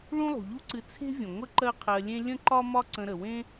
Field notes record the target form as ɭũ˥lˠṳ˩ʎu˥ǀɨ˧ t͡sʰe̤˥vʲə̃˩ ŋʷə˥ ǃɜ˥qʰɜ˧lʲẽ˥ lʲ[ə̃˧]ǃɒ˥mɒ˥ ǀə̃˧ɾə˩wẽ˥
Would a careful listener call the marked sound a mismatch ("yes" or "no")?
yes